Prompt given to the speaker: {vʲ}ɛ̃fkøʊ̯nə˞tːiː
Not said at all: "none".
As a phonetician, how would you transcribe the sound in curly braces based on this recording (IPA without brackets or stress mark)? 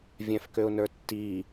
vʲ